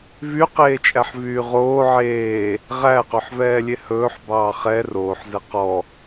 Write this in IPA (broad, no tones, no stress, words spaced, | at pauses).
vyqeːt͡ʃʼæħvyː ʁoː ʕeː | ʁæqɵħvɛːlʲe hɵːħbɑː χɛ roːħzɛ qɔ